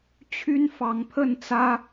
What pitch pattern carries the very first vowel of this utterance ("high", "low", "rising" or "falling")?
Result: high